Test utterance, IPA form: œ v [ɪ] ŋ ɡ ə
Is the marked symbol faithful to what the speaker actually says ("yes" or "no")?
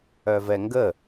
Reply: no